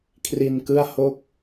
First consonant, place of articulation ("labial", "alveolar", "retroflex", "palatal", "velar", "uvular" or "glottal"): velar